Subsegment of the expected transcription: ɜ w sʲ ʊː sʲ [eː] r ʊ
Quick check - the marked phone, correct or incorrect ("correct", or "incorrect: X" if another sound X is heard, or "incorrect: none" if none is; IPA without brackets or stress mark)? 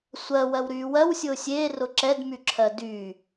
correct